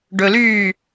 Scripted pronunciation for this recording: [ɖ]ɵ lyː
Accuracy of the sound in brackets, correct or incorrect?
correct